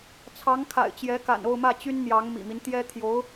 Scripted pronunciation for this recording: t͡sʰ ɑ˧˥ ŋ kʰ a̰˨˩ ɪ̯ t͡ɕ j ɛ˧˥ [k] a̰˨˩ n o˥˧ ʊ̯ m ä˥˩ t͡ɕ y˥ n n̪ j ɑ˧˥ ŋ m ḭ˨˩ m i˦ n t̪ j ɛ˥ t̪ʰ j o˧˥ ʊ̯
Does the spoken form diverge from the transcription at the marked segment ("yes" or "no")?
no